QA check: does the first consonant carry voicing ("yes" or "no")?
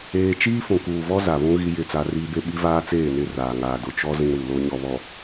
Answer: no